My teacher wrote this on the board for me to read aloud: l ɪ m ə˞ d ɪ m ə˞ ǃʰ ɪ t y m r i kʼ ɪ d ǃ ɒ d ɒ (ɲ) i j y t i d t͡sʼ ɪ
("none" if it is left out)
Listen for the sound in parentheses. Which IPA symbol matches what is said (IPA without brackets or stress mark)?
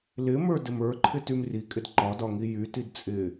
ŋ